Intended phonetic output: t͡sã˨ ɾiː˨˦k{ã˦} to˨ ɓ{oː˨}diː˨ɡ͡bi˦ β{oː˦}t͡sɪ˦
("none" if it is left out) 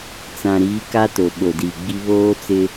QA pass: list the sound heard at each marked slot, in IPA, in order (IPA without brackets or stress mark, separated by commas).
a˦, o˨, oː˦